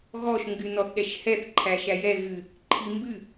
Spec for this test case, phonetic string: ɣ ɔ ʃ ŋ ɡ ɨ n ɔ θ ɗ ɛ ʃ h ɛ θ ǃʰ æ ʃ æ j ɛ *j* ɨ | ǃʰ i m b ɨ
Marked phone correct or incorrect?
incorrect